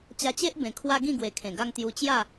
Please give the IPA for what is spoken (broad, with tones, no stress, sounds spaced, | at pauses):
t͡ɕ a˧ t͡ɕ e˦ ʔ b ẽ˨˩ kʰ w a˦ ɡ ĩ˥˧ ɡ w e˨˩ kʰ ẽ˨˩ ɡ a˦ ŋ t̪ j u˧ t͡ɕ j a˥˧